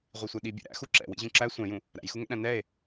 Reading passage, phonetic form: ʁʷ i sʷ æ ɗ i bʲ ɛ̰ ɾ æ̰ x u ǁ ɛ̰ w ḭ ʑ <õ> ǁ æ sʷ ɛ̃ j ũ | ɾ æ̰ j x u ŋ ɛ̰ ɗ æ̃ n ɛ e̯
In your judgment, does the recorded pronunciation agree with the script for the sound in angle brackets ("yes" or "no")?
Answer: no